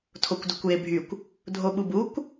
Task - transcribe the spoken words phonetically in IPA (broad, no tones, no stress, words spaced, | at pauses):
tʰokʷdukʷjebʱykʷ | dʱoɓubukʷ